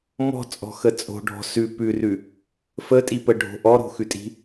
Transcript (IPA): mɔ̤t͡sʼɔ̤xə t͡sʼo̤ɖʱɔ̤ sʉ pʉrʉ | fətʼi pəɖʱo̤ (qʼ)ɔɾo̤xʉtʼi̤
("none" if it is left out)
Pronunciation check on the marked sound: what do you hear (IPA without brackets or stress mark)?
ʔ